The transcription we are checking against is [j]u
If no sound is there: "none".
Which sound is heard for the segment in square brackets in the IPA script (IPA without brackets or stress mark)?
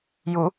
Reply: j